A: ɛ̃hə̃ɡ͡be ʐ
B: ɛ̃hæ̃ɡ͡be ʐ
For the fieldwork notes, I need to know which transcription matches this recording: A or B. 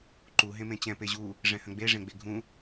A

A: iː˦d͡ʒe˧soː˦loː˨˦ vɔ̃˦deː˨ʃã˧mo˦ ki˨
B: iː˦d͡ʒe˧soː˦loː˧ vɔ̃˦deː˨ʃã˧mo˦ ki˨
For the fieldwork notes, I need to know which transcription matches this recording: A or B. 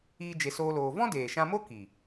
B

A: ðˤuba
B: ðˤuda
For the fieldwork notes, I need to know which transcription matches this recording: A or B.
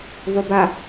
A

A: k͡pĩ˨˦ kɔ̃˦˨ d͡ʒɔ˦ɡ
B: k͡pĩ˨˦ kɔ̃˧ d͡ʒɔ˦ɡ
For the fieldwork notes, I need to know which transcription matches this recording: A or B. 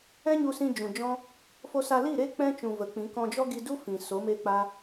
B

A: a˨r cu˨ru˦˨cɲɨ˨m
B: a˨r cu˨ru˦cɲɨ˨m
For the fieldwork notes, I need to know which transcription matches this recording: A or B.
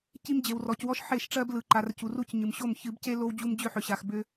B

